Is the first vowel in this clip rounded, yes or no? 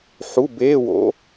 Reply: yes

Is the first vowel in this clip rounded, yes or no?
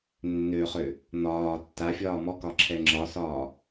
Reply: yes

